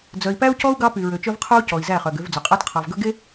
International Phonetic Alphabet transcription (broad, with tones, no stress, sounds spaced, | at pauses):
d͡z œ˨ i̯ p æ˦ u̯ c ɔ˦ u̯ ɡ ɑ˦ p y˨ ɹ ø˨ t͡ʃ œ˦ v qʰ o˦ u̯ c ɔ˨ i̯ z æ˦˨ χ œ˨ ɡ ø˨˦ v d͡z ɵ˨ qʼ æ˦ t qʰ ɑ˨ v ɡ ɵ˦ ɡ e˦